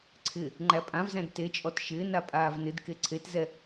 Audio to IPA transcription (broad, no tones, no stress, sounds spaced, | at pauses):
ǀʰ ɪ | ŋ͡ǃ æ pʼ ã v z æ̃ d t e t͡ʃʼ ɔ t ʃ ɪː n a pʼ aː v n ɪ d k e ǀʰ e t z ɛ